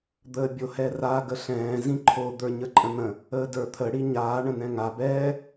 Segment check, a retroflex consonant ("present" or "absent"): present